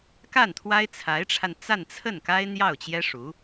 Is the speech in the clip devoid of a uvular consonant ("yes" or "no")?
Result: yes